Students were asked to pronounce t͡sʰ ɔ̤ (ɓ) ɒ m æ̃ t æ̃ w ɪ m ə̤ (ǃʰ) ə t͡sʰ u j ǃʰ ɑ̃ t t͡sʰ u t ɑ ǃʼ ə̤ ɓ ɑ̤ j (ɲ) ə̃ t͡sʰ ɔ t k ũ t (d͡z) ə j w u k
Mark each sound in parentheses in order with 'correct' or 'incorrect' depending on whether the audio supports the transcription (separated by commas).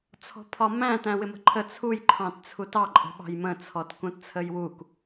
incorrect, correct, incorrect, incorrect